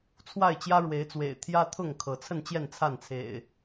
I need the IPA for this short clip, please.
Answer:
t͡sʰ w a˥˨ ɪ̯ t͡ɕ j ä˦ ɻ w e˨˦ ɪ̯ t͡s w ḛ˨˩ ɪ̯ t̪ʰ j ä˦ t̪ʰ ʊ˥˨ ŋ kʰ ɤ˨˦ t͡sʰ ə˥˨ n t͡ɕ j ɛ˥˨ n t͡sʰ a˥˨ n t͡sʰ ḛ˨˩ ɪ̯

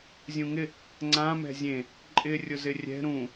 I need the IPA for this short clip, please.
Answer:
zʲ ũ ŋ ɪ | ŋ͡ǀ ã m ɛ̤ zʲ ẽ | ǃʼ ɪ rʲ ʊ z ɪ rʲ ɛ̤ ɾ ũ

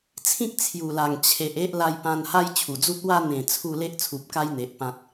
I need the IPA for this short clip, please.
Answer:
t͡sʰ ĩ˦ k̚ t͡sʰ j u˨˩ l a˨˩ ŋ t͡ɕʰ e˨ ʔ e˦ ʔ l a˧ j p ã˧ n h a˦ j t͡ɕʰ u˨˩ d͡z u˦ t̚ w a˧ n̪ ẽ˨˩ t͡sʰ u˥˧ l e˦ ʔ t͡sʰ u˨ p̚ k a˦ j n̪ e˨ ʔ p ã˦ t̚

